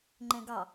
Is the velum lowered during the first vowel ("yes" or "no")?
yes